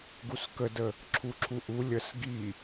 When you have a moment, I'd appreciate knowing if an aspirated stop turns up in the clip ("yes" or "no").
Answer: yes